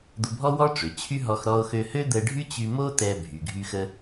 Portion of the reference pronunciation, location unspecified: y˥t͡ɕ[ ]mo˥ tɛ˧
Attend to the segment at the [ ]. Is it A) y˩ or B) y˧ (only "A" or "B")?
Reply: B